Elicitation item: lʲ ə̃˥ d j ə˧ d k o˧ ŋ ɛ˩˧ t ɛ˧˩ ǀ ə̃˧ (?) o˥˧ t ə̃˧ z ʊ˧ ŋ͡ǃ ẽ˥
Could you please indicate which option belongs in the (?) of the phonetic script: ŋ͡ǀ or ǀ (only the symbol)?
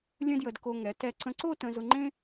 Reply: ǀ